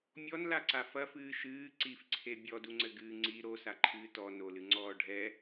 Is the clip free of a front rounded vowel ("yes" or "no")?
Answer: yes